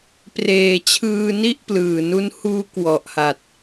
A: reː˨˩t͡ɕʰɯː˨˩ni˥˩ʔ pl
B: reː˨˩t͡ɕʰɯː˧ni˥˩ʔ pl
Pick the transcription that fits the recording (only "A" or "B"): B